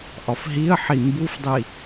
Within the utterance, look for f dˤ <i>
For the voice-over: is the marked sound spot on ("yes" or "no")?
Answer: yes